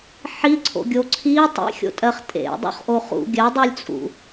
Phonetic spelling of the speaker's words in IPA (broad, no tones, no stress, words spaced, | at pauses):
ħiǀʰo̰ɡʲo ǀʰi tˤḭxʲo̰tʼɜχ tʼḛdˤṵχʔo χṵ ɡʲɜdˤulʲt͡sʼṵ